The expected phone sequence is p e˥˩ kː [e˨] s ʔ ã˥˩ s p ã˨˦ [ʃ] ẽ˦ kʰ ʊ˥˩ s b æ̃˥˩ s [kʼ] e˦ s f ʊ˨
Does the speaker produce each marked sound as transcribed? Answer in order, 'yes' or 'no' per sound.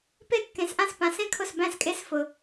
no, no, yes

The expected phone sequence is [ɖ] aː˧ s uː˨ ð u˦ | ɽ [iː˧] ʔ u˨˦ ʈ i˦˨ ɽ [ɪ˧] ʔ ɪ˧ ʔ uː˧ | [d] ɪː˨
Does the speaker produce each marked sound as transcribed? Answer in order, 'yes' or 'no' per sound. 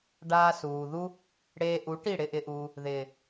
yes, no, yes, no

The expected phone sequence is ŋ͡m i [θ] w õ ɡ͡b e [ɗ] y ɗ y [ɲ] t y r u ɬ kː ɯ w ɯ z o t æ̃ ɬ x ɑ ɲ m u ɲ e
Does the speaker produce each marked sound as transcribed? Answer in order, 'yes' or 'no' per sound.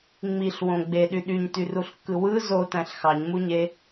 no, yes, yes

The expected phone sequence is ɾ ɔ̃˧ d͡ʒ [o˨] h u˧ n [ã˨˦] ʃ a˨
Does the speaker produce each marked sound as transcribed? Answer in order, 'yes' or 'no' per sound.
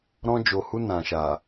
yes, no

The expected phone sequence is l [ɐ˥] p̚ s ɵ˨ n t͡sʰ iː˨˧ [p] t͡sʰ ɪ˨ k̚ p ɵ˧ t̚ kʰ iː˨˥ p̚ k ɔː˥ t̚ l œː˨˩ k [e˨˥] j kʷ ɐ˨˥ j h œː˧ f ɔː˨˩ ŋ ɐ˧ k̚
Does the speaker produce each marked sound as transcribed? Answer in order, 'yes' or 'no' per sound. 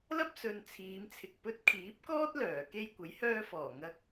yes, no, no

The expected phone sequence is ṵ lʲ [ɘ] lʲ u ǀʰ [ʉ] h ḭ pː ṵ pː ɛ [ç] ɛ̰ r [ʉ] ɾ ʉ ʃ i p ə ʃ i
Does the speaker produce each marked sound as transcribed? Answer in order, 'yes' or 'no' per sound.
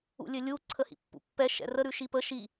yes, no, no, no

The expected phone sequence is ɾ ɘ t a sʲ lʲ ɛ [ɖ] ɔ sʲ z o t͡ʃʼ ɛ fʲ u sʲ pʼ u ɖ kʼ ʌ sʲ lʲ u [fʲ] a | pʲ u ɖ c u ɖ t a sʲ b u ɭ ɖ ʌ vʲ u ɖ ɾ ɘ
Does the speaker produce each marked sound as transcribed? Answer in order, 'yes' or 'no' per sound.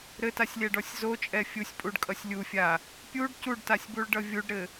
yes, yes

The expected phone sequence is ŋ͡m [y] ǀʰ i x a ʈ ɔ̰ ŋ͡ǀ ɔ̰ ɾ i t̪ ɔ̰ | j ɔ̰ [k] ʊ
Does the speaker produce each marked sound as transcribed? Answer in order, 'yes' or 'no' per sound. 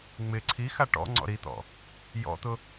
no, no

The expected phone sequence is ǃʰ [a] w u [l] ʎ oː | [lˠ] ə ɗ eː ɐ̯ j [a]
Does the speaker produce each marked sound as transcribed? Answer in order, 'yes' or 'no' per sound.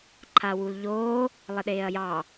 yes, yes, yes, no

